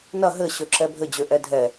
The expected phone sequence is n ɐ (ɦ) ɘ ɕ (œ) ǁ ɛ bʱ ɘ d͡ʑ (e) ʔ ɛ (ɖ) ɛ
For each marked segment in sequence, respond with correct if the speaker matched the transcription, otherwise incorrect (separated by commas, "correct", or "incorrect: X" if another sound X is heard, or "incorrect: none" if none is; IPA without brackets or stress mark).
correct, incorrect: ø, incorrect: ø, incorrect: dʱ